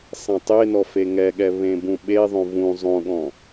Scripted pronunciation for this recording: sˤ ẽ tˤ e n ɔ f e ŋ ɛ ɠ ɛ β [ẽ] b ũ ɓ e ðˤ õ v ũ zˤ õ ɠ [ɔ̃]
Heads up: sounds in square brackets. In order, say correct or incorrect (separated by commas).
correct, correct